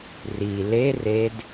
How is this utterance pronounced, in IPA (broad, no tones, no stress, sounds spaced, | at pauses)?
r i l e r e d